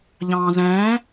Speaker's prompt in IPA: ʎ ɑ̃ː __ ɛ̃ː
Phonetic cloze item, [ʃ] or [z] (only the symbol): z